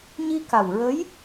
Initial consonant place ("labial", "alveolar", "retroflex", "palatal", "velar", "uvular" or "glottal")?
palatal